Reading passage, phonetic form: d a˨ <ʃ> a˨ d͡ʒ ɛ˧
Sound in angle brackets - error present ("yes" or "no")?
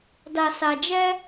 yes